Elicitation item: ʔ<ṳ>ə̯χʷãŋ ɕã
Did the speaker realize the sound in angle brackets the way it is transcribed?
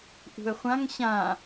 yes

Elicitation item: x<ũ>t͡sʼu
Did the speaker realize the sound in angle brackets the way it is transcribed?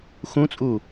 yes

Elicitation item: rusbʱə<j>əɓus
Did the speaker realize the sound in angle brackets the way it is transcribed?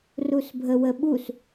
no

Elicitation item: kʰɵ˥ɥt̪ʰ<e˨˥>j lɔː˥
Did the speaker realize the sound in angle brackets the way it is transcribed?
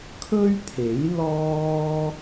yes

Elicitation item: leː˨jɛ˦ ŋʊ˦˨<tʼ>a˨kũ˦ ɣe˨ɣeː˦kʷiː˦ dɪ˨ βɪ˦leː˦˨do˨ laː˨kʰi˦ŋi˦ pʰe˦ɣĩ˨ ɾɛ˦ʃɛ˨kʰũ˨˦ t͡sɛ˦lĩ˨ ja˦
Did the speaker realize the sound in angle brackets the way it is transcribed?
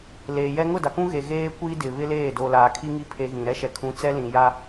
no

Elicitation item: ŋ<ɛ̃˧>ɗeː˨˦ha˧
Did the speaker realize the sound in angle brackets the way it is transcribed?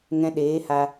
yes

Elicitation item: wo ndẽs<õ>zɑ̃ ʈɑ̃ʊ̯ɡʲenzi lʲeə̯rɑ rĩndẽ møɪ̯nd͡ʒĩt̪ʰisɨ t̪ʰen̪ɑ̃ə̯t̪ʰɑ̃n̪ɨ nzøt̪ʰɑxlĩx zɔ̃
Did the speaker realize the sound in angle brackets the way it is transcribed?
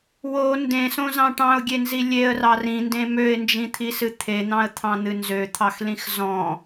yes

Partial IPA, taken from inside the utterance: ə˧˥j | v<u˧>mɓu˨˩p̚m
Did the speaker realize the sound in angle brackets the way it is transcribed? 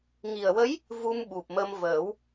yes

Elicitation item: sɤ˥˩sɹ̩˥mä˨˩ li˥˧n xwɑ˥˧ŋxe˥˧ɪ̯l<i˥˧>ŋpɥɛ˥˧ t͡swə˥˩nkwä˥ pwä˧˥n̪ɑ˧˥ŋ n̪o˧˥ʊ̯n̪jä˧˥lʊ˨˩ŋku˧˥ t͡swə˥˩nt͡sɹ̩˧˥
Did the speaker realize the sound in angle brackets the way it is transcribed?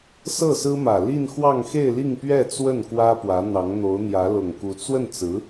yes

